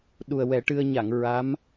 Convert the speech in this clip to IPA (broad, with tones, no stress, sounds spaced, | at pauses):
ɗ u˨˩ ə̯ w ɛ˨˩˦ ʈ ɨ˧ ə̯ ɲ a˨˩˨ ŋ ɹ a˧˥ m